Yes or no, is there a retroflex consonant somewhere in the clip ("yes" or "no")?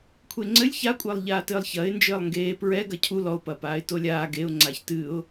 no